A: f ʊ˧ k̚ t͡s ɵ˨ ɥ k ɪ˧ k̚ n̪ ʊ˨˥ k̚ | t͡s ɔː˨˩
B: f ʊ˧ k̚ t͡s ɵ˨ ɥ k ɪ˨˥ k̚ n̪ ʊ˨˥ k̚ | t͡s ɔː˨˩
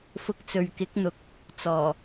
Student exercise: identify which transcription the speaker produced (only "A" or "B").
B